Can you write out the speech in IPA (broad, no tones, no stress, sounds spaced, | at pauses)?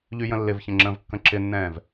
ʎ y j ə̃ lː ɪ v ç ə̃ ŋ͡ǁ ə̃ː v kː ə̃ ǁ ɪ nː ɛ̃ː v